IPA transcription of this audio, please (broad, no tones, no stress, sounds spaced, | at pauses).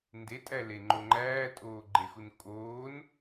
n d e tʼ æ l e ŋ͡ǃ o ŋ͡ǃ æː tʼ oː ɡ͡ǃ e x u n kʼ oː n